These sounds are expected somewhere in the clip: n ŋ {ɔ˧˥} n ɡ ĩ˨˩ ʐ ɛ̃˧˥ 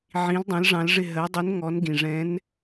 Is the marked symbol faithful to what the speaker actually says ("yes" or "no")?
yes